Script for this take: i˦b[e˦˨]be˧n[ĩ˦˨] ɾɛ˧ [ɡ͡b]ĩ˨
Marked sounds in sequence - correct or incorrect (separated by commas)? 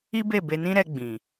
correct, incorrect, correct